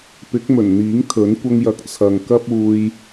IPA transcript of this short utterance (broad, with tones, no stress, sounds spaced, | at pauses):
p ɪ˨˥ k̚ m ɵ˨˩ n n̪ iː˨˥ ŋ t̪ʰ ɵ˨˥ n kʷ ɐ˧ ŋ j ɐ˨˥ k̚ t͡sʰ ɐ˨ ŋ k ɐ˥ p̚ uː˧ j